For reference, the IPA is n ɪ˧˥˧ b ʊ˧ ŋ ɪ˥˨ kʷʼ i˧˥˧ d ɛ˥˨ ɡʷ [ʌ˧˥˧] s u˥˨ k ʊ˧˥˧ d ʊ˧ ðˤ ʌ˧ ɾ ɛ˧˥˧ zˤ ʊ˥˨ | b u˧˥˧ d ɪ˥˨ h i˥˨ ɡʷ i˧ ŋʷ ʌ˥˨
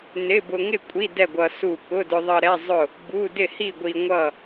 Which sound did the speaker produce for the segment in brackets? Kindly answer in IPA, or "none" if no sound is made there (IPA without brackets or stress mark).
ʌ˧